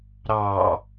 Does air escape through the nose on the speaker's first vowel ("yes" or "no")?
no